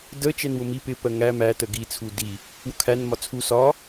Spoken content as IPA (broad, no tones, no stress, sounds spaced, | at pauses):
d ə t͡ʃ ɛ n w ʊ m i p ɪ p ɜ ŋ æ m æ t ə ɡ i t͡sʰ u d i | w ʊ kʰ æ n m ɒ t͡sʰ u s ɒ